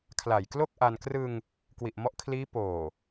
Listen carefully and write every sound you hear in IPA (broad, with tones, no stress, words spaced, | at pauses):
kʰla˨˩jklo˥˩k̚ʔa˧n krɯ˧ŋ | kwi˨˩ʔmɔ˦˥ʔkʰliː˦˥ poː˨˩